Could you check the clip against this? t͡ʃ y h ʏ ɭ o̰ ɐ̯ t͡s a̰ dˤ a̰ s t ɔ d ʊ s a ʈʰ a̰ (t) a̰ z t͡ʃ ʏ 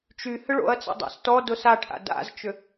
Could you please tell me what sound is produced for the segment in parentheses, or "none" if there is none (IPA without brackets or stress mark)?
d